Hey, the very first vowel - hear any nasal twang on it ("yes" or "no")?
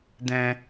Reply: yes